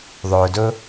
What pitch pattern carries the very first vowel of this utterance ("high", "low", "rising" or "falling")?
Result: low